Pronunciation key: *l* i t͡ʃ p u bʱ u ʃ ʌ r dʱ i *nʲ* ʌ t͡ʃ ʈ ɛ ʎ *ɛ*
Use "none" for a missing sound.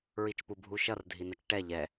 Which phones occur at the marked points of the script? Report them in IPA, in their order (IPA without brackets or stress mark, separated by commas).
ɹ, n, ɛ